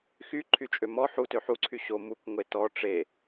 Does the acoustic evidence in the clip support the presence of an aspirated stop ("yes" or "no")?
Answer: yes